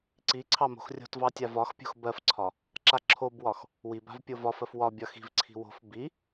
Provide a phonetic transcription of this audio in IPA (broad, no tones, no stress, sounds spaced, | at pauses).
ǀ i ǀʰ ɑ m o̤ x rʲ o̤ t v ɑ tʲ a v ɒ x pʲ o̤ x b ɜ f ǀʰ ɒ | ǁ a ǁʰ o b w ɒ x | w i b a̤ v pʲ o v ɒ f ɜ f w ɒ bʲ ɒ x i̤ v ǀʰ i̤ w o̤ f b i